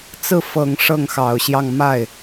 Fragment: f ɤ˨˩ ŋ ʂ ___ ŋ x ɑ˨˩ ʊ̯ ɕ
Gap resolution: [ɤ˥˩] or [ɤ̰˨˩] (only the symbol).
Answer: ɤ˥˩